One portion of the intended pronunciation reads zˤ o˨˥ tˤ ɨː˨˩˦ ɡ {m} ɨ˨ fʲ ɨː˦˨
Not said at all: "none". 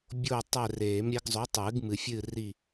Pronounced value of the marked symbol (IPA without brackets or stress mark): m